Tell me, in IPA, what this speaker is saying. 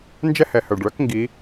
n d͡ʒ ɛ˥ h ɛ˩˧ h œ˩ ɖ ɭ œ˧˥ k ŋ ɡ i˩˧

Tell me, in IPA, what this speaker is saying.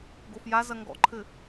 ɡ o f j a z ɐ ŋ ɡ ɔ̰ ǃʰ ɘ

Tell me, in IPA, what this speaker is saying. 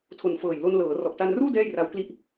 tʰ o˨˩ n f ɤː˨˩ j l o˧ n l ɤː˩˦ r ɔ˨˩ ʔ t a˧ n r uː˥˩ d ɛː˥˩ j r a˦˥ w k l i˥˩ ʔ

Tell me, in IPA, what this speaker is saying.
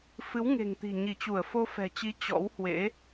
f ɨ˨˦ w ŋ e̤˨˩ ŋ t̪ i̤˨˩ ɲ i˧˩ t͡ɕ u˧˩ ə̯ f o˧ f ɛ̤˨˩ t͡ɕ i˨˦ t͡ɕ ɔ̰˧˥ w h w ḛ˧˥

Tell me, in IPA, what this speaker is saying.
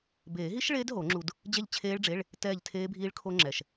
b eː˨˩˦ ɦ i˦˥ ʃ ɭ eː˦˥ d ɦ o˨˩˦ ŋ͡ǁ u˧ d | d͡ʑ ɛ˥˨ ʎ t͡ɕʰ eː˦˥ ɭ ɖ͡ʐ e˧˥˧ ɭ | t ɛː˥˨ ʎ tʰ eː˦˥ bʱ iː˦˥ ɭ kʰ o˦˥ ŋ͡ǁ ɛ˨˩ ʃ

